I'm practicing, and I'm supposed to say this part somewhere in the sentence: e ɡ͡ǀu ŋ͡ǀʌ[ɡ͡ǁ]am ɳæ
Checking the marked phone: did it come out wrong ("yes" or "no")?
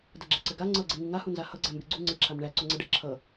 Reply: yes